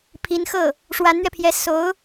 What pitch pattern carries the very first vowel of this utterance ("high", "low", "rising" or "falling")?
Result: rising